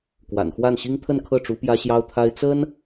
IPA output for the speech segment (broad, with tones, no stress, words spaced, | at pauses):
kwa̰˨˩nxwa˥˩nɕi˥ŋ t̪ʰə˥˧nkʰɤ˥˩ʈ͡ʂu˧˥ pjä˥ɕjɑ˥ʊ̯t̪ʰa˥ɪ̯ t͡sə˥n